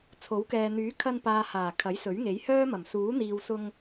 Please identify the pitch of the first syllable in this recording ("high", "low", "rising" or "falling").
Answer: rising